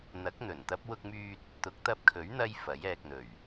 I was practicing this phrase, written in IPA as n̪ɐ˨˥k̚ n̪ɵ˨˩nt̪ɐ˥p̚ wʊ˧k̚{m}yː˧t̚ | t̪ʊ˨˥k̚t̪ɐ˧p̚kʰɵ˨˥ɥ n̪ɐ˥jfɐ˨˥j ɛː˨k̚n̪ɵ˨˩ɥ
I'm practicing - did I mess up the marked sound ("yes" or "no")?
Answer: no